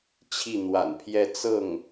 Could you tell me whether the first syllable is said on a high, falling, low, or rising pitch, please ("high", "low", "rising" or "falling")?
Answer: falling